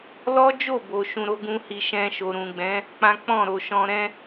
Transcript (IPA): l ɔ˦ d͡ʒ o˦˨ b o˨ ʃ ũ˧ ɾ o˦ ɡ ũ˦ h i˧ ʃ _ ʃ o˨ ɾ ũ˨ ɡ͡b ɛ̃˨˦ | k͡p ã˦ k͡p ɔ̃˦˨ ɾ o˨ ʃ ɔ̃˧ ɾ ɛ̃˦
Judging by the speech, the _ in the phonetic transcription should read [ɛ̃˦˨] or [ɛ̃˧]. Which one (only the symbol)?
ɛ̃˧